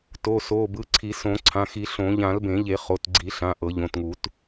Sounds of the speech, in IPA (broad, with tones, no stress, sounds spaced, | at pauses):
t o˩˧˩ s o˩˧˩ b ɯ˩˧˩ ǀʰ i˨˩˦ s õ˨˩˦ ǀʰ ã˩˧˩ x i˨˩˦ ɬ õ˨˩˦ ʎ ã˨˩˦ l b ẽ˨˩˦ ʎ e˨˩˦ χ o˩˧˩ t ɡ͡ǀ i˨˩˦ ɬ ã˩˧˩ ʔ ɤ˨˩˦ ʎ õ˩˧˩ t ŋ u˨˩˦ t